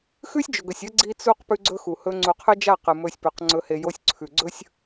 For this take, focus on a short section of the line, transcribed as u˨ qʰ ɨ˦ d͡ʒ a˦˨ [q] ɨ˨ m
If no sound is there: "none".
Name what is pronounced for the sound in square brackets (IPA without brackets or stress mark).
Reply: q